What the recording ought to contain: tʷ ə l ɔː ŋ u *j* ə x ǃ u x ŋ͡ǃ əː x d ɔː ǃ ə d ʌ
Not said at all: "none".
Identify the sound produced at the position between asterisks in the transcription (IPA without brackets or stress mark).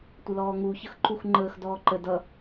ç